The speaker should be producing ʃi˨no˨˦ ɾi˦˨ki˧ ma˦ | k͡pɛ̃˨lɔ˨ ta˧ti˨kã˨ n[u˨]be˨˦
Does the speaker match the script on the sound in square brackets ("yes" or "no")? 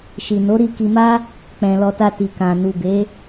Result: yes